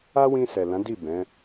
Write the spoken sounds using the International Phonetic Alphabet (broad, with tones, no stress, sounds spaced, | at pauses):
a˦ w ĩ˧ s ɛ˨ l ã˨˦ d i˦˨ b ɛ̃˨˦